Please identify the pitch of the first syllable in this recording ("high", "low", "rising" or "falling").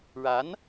rising